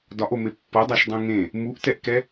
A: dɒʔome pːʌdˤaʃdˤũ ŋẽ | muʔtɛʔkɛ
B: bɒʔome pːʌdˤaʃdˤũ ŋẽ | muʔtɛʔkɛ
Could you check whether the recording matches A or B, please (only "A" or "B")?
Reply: A